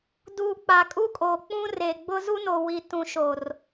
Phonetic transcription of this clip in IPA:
duː˨ k͡pa˨kʼu˦kʼoː˨ k͡pũ˦reː˨ɡ͡bʊ˦ zu˦no˨ wi˨tũ˨ ʃo˨r

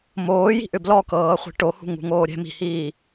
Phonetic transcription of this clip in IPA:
moːji̤ ʔʏblɔkɤː χʷi̤ʈohṳ ŋṳŋoːɾʲɛ̤ mi̤hiː

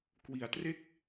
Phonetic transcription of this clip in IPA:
kwi˩˦a̯tre˥˩k̚

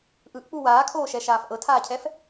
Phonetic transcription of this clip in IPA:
ʔɯʔk͡pu waːkʰoːʃɛʃaːf ʔɤtʰaːcʰɛf

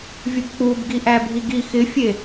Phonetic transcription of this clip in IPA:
vʲʊbk͡pubɡiʔæ bʱiɡi xɪfʲe

